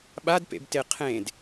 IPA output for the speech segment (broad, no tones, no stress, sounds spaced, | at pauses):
ɓ a d p ḛ b t e qʰ ẽ d